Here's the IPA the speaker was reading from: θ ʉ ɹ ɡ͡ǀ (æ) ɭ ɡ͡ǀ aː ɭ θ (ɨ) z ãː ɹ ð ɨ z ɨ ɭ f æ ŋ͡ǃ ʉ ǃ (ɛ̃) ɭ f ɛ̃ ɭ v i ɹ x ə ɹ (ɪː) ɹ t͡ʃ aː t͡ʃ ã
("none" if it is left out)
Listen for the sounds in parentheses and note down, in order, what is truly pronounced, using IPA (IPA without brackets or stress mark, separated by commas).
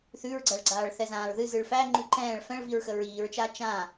æ, ɛ, ɛ̃ː, iː